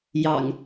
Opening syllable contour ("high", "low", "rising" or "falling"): low